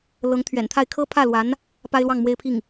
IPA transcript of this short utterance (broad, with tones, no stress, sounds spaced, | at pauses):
l ɤ˧˥ ŋ t̪ʰ ɥ ɛ̰˨˩ n t̪ʰ a˥˩ ɪ̯ kʰ ɤ˥ pʰ ä˥˩ l w a˧˥ n | p a˥ ɪ̯ l w ɑ˥˩ ŋ m w e˥ ɪ̯ pʰ i˥˩ ŋ